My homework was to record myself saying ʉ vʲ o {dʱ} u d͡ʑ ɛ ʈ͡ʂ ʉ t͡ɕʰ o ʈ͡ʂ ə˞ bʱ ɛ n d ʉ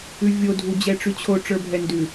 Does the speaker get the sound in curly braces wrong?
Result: no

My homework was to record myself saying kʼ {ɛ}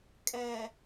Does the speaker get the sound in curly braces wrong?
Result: no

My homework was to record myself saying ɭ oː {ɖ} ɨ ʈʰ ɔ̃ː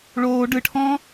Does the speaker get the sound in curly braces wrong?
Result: no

